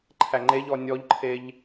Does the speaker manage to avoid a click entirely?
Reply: no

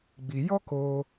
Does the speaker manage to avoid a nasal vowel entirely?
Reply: yes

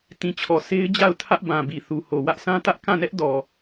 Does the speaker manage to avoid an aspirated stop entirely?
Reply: no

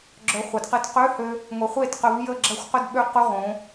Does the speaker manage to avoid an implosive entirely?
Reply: no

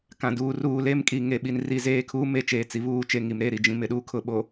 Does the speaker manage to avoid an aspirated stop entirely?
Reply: no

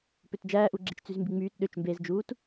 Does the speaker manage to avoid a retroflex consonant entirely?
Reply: yes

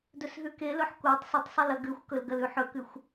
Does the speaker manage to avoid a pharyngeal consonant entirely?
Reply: no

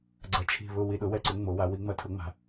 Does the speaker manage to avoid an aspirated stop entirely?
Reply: no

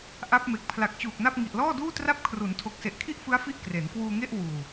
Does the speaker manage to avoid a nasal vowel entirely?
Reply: yes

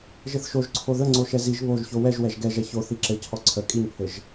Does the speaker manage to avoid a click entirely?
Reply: no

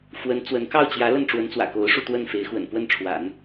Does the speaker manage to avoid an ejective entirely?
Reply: yes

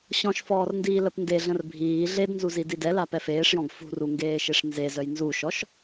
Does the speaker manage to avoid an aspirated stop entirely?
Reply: yes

